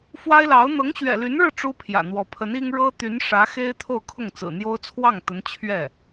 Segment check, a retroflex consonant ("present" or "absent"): present